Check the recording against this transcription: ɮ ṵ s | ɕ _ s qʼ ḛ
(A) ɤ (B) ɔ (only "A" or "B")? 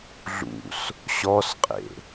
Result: B